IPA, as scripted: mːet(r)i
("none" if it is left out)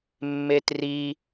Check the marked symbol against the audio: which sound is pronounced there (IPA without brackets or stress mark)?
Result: r